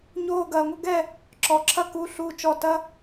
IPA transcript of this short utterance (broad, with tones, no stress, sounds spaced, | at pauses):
ɲ oː˧˩ ɡ ɐː˩ ŋʷ ɐ˦ ɡ ɛ˥˨ | ǁ ɔ˩ ǁʰ ɐ˦ k u˩˧˩ ɬ u˧˩ t͡ʃ ɔ˧˩ t ɐ˦